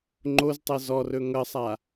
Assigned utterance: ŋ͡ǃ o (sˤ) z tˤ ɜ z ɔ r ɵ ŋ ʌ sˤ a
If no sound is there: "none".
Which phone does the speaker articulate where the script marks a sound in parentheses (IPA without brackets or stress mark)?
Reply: none